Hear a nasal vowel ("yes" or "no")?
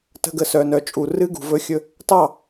no